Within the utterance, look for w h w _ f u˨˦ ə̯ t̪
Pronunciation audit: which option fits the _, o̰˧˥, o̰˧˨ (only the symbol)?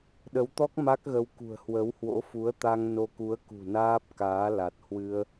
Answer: o̰˧˥